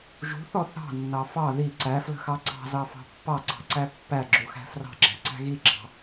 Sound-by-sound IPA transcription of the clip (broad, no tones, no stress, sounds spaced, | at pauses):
ʒ ṳ θ ɔ θ ɑ̤ nː ɑ f ɑ ð i ǀ æ f l ə̤ x ɑ ǀ ɑ̤ z ɑ f ɑ̤ pː ɑ ǀ ɑ̤ ǀ æ pː æ ɡ͡ǁ u x æ̤ f r ɑ̤ ɡ͡ǁ æ̤ ǀ æ̤ ɣ i ɡ͡ǁ ɑ̤